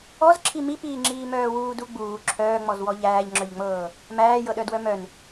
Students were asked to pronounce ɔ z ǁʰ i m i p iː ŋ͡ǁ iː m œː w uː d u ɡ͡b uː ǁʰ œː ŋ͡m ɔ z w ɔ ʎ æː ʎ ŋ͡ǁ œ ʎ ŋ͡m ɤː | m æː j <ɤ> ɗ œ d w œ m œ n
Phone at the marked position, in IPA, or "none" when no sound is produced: ɤ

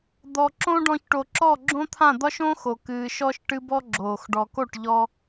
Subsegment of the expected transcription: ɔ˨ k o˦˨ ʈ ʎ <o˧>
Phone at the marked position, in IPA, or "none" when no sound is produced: ɔ˧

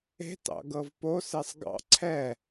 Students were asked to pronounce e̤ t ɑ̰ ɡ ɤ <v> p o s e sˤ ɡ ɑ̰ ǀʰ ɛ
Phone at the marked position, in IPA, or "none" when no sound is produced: v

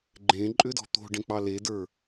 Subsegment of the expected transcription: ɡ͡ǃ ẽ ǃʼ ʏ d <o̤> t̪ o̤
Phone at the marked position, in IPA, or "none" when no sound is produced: ɔ̤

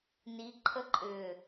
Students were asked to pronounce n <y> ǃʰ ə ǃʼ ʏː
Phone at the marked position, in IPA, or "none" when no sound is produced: i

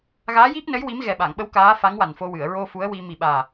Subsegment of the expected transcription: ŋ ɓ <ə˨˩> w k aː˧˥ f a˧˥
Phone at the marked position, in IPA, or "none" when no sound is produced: ə˧˥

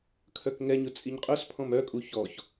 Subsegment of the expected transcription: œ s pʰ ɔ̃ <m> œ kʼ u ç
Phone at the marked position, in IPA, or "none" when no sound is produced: m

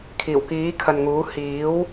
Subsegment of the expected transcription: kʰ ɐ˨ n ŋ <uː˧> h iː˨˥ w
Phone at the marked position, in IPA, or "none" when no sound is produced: uː˨˥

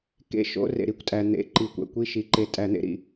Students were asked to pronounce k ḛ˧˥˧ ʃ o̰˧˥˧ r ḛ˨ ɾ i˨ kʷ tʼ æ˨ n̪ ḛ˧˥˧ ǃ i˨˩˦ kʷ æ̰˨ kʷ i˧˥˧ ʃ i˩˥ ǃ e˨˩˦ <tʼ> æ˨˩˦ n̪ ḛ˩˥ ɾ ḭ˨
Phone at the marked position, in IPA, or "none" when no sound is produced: tʼ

